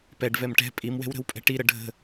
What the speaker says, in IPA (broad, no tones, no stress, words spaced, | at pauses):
pɛɖ vɛmʈɛ̤ pʼimwɛ̤wɾə̤w pʼɛ̤ʈiɾə ɖʱə̤